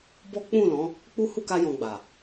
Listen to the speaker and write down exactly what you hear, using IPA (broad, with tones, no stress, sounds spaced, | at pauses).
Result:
b ɔ˦ k͡p ũ˦˨ l ɔ̃˨˦ | k͡p u˦ h u˦˨ k a˧ j ɔ̃˧ ɡ͡b a˨